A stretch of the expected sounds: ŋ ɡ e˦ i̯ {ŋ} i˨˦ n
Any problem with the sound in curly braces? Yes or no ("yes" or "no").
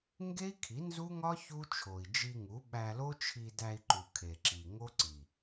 yes